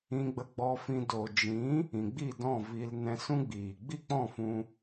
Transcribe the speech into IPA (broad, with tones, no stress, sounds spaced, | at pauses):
ĩ˧ ɡ͡b ə˧ ɡ͡b ɔ˧ f ĩ˧ d o˨ d͡ʒ ĩ˨˦ | ĩ˨ ɡ͡b i˦˨ d ɔ̃˦˨ v i˧ l n ɛ̃˧ s ũ˦ ɡ͡b iː˨ ɡ͡b i˦˨ k͡p ɔ̃˦˨ f ũ˧